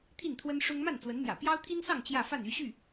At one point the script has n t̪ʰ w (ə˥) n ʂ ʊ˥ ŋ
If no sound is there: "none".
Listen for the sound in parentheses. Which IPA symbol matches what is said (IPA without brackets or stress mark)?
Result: ə˥